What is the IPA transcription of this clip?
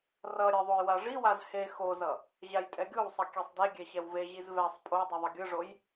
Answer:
rʌɾʲe ðˤojwaʐiwaz he xozʌ | ʑajtʼɛɡʲowsˤʌ kʲesˤdeɡʲɛ ɕɛwveʑiz vɛsˤ pʼo dˤuðˤʌɡʲɯʐoj

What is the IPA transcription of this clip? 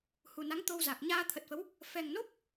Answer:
hu˨˩na˨˦ŋ t̪o˧wza˨˩k̚ ɲaː˧t̪ʰə˨˩t̚fə˨˦w | fɛ˨˩ŋno˦˥p̚

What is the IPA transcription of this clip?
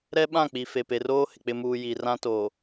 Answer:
ɾɛ˦ɓã˦˨k͡pi˨ fe˨pe˨roː˦hɪ˨ k͡pɪ˨muː˨ ji˨rã˦ toː˨

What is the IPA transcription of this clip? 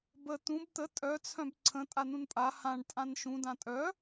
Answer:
bə t̪ũb t̪ə tʼœ t͡sʰœ̃bǀʰə̃ tʼanũnpʼa hãɳ tʼãnʃũ dãtʼœ

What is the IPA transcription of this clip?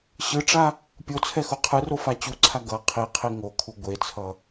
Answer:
ɕɯʈ͡ʂa | pʲot͡sʰɛxo qʰɯrofa t͡ɕuǀʰa ɡʌ qʰiqʰi ŋokʰu ɡʷet͡sʰʌ

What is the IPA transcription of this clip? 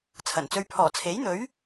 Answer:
t͡sʰɐ˨˩nt͡sɵ˧ɥ pʰɔː˨˩t͡sʰe˨˥jn̪ɵ˨˥ɥ

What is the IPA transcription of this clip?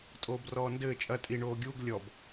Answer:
tʼoːbrɔːndɘː t͡ʃʼɐ tʼi ɳoːɡʲuːɡ lʲɔb

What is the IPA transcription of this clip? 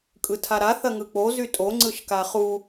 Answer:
kʼɯtʰaɾa θɐŋɯk͡po zytʼo ŋ͡ǀɯʃkaχu

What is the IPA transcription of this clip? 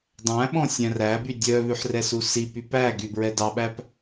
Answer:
dˤæ̃ɓɔ̃ sʲæ̃ræby dʲœβʉħ rɛsusipy pæ ɡybɹɛdɑɓæp

